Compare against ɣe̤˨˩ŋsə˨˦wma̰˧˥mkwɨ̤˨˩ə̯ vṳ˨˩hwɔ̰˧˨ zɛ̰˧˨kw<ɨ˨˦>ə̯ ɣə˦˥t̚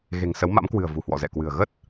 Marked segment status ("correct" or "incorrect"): incorrect